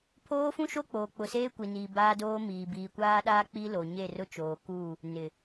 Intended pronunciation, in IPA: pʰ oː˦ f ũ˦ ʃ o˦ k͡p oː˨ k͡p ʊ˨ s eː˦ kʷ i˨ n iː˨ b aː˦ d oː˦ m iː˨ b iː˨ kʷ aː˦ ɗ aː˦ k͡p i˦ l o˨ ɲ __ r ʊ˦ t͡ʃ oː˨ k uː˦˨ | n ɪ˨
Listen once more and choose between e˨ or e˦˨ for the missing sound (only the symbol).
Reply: e˦˨